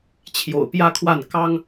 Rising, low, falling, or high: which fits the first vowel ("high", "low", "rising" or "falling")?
low